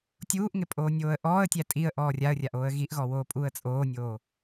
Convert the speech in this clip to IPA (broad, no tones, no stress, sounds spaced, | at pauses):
tʲ uː ʔ ŋ ɪ pʼ oː nʲ oː ə̯ ʔ ɔː ə̯ tʲ æ tʼ i ə̯ ʔ ɔː rʲ a ə̯ rʲ a ʔ oː ə̯ ɣ i ʔ ɣ ɔ w oː pʼ uː ə̯ t͡sʼ oː nʲ oː